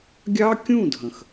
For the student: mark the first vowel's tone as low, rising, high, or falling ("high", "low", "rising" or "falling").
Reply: high